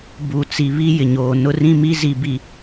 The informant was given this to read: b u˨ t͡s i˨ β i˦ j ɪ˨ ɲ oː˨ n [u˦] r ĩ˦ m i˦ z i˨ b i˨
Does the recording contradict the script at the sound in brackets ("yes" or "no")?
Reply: yes